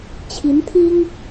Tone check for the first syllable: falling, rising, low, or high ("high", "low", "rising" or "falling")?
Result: rising